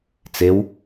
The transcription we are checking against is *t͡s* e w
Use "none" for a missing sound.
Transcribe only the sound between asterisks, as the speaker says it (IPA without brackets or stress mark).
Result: t͡s